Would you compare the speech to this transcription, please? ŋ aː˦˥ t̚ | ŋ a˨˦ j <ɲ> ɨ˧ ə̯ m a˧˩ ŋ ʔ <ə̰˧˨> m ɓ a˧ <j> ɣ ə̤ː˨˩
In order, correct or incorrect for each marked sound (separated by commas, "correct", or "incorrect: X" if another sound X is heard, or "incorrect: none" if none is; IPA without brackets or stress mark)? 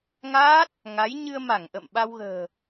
correct, correct, incorrect: w